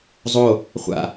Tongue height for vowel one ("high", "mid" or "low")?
mid